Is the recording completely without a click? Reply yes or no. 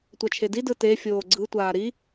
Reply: no